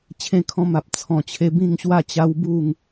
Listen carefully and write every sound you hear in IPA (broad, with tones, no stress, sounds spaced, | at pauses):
t͡ɕʰ ẽ˧ kʰ ɔ̃˧ m a˨ p̚ t͡sʰ ɔ̃˨˩ t͡ɕʰ e˧ b ĩ˥˧ ŋ ɕ w a˥˧ t͡ɕ a˦ w b u˥˧ ŋ